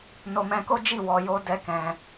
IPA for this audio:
n o˧ m ɛ̃˧ k o˦ d͡ʒ i˦˨ w ɔ˧ j o˦ d ɛ˦ k ɛ̃˧

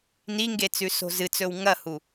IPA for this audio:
n i ŋ ɡ e t͡s ʉ s o̤ z ɨ t͡s ɵ w ŋ ɐ h u

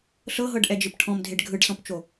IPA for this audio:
ɬ ɤ ɦ ɤ ɖ ʔ ɛ d͡ʒ ɯ p ʈʰ ɔ̃ m dʱ e ɖ ɡʱ ɯ ɖ s ɔ̃ p t͡ʃ o

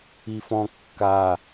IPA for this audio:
i f ɔ̃ kː a

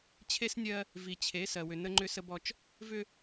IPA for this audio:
t͡ɕʰ e˦ s nʲ ɜ˦ | v i˨ t͡ɕʰ e˨˦ s ɜ˨ w ʏ˨ n ə˦ ŋ͡ǃ ʏ˦ s ə˦ b ɔ˦ t͡ʃ | v ʏ˦

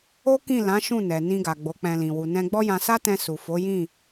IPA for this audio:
o˦ k ĩ˦˨ l ã˨˦ ʃ ũ˦˨ n ɛ˨ n ĩ˧ ɡ a˨ ɡ͡b o˨˦ k͡p ɛ̃˧ l ĩ˨ w u˨ n ɛ̃˧ ɡ͡b ɔ˦ j ã˧ s a˦ t ɛ̃˧ s u˨ f o˨˦ j ĩ˦˨

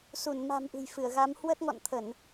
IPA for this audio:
s u˧˩ n m a̤˨˩ m ʔ ɨ̤˨˩ j f ɨ˧˩ ə̯ ɣ a˨˦ m h w ə˦˥ t̚ ŋ ɔ̰˧˨ n t̪ʰ ə˧˩˨ n

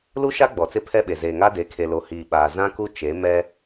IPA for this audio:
l u˦ ʃ a˦ ɡ͡b ɔ˨ t͡s ɪ˦ pʰ ɛ˦ ɓ e˨ z eː˨ ŋ a˦ d e˨˦ kʰ e˨ l o˨ h iː˨ ɓ aː˨ z ã˦ k u˦ t͡ʃ e˨˦ m ɛ˦

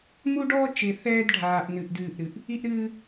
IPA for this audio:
m u˦ ɖ ɔː˦ t͡ʃ e˨ θ ɛː˦ d ɖʱ aː˨ ʔ n ɨ˨ ʔ d ɨː˦˨ ʔ ɾ ɨ˨ ʔ | i˦ ʔ ɾ ɨː˦

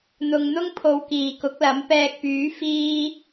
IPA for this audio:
n̪ ʊ˧ ŋ n̪ ʊ˥ ŋ pʰ o˧ w k iː˨ k ʊ˨˥ k̚ l ɐ˨˥ m p ɛː˧ k̚ p yː˨˥ f iː˧

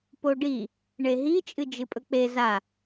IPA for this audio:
p o ɖ i | ɳ e ɦ i t͡ʃʼ ɨ d͡ʒ ɨ pʼ ɵ k͡p e z a

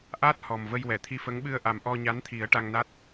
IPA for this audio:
ʔ a˦˥ t̚ h ɔ˨˩ m v ə˧ j w ɛ˨˩˨ t̪ʰ i˧ f ə˧˥ ŋ ɓ ɨ˧ ə̯ ʔ a˨˩ m ʔ ɔ˧ ɲ a˧˥ n t̪ʰ i˨˩˦ ə̯ ʈ a˧ ŋ n a˦˥ t̚

